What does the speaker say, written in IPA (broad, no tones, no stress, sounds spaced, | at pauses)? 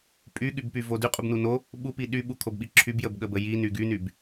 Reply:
pʼ y ɠ y b p y v o d y qʼ u b n u n o | ɓ u p i ɗ y ɓ u kʰ o b ɓ i ǁʰ y b j ə b ɠ ə b ə j i n y ɡ y n y b